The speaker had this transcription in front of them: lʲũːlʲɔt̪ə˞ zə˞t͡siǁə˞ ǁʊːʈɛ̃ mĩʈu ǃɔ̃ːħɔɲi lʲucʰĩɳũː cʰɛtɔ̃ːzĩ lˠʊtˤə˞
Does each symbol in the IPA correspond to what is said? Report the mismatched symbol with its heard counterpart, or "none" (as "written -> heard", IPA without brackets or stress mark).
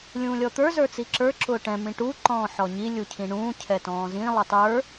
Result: none